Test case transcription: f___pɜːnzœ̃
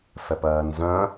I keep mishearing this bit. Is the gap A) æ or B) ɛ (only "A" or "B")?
B